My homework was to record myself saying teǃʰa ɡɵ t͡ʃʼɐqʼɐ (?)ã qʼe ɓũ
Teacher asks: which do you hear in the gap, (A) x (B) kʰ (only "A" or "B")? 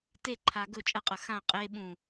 A